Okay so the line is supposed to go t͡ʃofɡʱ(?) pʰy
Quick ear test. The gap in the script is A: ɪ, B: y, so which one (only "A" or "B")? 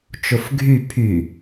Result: B